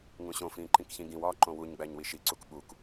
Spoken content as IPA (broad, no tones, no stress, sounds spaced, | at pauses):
ŋ ũ ɕ õ f ĩː ǃ ĩ k ç ĩ ɡ ĩ w ɒː ǃ õ w u ɲ ɡ͡b æ ɲ w i ʃ i ǀ u k ɓ u k